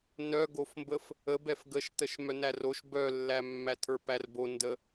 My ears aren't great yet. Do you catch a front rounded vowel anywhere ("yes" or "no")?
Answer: yes